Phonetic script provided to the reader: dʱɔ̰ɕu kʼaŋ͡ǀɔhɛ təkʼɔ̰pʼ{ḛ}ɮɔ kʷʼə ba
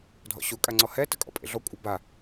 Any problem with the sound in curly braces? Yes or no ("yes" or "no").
no